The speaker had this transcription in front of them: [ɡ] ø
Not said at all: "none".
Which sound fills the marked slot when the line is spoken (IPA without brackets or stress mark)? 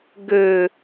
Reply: ɡ